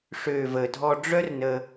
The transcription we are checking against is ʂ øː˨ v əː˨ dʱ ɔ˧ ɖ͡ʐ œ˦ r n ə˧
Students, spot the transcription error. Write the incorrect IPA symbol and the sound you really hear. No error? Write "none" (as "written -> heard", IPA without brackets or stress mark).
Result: none